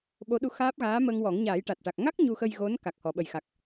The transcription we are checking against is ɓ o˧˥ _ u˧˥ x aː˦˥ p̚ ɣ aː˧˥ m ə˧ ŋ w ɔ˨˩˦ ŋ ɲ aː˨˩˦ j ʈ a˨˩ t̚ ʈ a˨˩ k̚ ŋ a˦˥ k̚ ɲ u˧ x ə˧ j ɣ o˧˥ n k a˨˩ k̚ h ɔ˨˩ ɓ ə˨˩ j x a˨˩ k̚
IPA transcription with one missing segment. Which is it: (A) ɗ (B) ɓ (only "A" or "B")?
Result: A